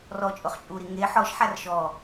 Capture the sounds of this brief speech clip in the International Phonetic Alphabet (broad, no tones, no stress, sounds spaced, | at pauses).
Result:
r ɔ t͡ʃʼ ʊ χ t͡ʃʼ u ɾ i ŋ e ħ ɔ ʃ ħ a r ʃ ɔ